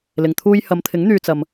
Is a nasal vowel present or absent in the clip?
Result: absent